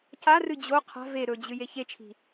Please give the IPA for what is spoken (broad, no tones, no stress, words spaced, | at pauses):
carɨ d͡ʑo qʰa̤ ve ɾɵd͡ʑɨ jeçet͡ʃʰi̤